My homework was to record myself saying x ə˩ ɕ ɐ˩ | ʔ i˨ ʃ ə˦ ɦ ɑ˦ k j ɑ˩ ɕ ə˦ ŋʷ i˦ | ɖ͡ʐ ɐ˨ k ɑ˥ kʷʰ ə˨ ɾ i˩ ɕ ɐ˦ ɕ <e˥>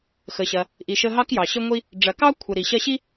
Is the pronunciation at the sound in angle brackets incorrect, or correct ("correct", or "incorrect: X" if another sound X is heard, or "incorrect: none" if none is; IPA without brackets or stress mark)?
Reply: incorrect: i˥